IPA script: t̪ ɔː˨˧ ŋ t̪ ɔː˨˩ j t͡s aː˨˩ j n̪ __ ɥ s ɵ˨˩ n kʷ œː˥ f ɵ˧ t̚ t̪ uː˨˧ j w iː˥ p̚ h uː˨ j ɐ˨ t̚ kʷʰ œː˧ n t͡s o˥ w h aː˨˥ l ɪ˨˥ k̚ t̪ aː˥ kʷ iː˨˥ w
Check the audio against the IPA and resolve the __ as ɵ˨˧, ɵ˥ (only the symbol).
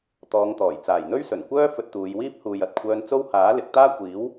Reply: ɵ˥